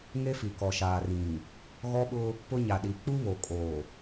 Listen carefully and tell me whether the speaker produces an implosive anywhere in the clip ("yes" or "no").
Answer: yes